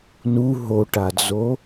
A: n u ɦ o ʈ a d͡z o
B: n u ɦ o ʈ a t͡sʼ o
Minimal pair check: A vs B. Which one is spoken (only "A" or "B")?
A